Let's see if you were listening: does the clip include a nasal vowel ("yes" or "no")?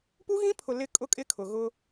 yes